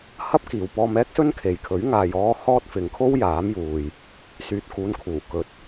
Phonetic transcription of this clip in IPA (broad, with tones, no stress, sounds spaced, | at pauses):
h ɐ˥ p̚ k iː˨ w p ɔː˧ m ɛː˥ k̚ s ɵ˥ n kʰ e˨ j kʰ ɵ˨˥ ɥ ŋ aː˨ j ɔː˧ h ɔː˥ t̚ f ɪ˨˧ ŋ kʰ o˥ w j aː˨˥ m j uː˨ j | s yː˨ t̚ k uː˨˧ n kʰ uː˨˩ k ɵ˨˥ t̚